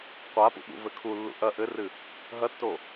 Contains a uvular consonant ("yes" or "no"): yes